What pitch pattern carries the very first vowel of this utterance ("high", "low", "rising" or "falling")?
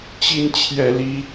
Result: high